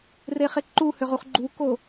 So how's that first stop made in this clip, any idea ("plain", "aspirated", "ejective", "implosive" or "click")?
click